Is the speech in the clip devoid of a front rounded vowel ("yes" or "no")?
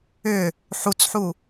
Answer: no